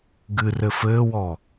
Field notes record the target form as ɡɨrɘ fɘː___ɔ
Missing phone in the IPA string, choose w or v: w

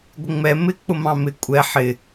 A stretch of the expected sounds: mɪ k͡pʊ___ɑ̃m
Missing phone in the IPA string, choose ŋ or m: m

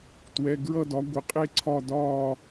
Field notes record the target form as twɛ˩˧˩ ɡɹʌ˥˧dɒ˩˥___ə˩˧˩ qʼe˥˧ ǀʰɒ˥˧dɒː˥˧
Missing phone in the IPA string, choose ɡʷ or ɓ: ɡʷ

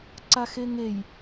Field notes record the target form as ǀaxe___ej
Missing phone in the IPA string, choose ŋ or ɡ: ŋ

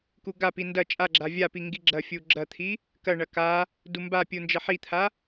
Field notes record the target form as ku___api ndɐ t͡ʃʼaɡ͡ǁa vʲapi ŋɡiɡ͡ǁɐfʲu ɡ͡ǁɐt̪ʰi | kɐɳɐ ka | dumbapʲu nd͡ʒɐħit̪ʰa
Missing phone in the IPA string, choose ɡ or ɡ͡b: ɡ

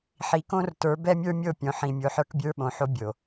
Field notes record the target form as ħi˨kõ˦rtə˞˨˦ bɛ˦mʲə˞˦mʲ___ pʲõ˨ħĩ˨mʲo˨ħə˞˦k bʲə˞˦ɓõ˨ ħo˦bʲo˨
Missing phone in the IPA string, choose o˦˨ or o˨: o˦˨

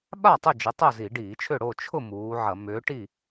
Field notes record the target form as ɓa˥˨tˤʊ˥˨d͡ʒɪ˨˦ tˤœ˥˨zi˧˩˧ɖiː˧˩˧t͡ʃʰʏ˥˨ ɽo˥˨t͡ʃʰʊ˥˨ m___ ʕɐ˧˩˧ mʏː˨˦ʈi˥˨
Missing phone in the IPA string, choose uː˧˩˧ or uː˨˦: uː˨˦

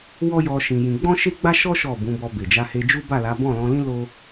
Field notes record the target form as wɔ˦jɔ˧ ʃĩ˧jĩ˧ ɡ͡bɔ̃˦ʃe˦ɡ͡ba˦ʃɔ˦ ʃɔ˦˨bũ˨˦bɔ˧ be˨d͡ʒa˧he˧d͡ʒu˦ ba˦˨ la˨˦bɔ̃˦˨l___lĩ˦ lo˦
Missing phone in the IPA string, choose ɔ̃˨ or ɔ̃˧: ɔ̃˧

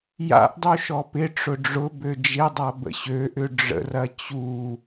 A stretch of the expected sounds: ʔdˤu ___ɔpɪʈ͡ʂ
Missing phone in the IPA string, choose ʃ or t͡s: ʃ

